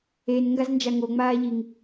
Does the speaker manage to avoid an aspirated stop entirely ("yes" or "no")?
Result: yes